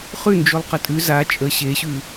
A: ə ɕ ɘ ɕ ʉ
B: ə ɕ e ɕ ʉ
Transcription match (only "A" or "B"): B